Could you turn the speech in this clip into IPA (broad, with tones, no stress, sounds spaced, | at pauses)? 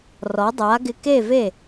r ɔ˩˥ dˤ a˩˥ ɡ ɪ˧ k e˥˩ v e˥˩